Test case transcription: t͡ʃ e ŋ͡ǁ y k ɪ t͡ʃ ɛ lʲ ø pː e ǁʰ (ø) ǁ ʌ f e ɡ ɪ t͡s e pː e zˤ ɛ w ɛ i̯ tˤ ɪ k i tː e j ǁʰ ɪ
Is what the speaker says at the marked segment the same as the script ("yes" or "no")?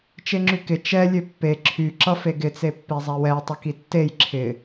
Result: no